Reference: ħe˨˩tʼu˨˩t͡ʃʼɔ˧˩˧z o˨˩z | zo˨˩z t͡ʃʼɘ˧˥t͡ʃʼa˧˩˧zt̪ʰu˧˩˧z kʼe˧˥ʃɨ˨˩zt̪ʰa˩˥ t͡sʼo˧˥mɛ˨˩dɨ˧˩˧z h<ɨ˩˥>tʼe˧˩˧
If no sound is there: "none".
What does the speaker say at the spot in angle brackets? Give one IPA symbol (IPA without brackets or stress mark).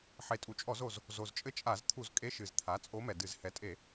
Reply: ɛ˩˥